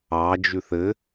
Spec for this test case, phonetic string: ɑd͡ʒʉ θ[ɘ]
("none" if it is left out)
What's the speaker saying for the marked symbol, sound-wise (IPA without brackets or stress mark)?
ɘ